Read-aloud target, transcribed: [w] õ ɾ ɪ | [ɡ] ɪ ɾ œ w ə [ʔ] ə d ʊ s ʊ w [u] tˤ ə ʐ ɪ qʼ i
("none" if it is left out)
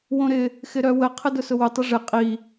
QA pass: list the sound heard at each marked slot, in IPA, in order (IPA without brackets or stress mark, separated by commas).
w, x, qʰ, ʊ